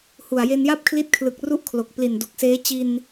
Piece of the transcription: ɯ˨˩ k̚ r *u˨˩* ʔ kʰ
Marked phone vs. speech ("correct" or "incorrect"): incorrect